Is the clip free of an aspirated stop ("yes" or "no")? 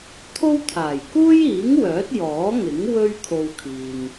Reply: no